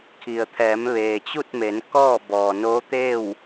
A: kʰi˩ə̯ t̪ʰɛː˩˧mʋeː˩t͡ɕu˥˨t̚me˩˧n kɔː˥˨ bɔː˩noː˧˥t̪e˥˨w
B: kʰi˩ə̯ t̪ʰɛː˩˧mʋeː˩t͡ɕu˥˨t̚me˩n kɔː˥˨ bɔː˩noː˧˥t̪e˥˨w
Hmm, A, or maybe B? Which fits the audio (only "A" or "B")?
A